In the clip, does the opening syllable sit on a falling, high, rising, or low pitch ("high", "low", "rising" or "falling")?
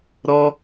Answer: high